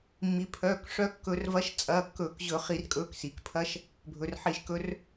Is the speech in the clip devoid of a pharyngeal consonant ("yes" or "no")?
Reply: no